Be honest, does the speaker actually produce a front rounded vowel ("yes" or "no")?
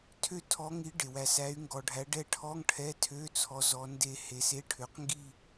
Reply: yes